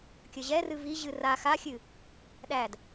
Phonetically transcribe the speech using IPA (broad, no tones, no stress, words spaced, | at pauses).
kʲəʑɛrɨ viʑɨ ra xaxʲɨ | ɗæd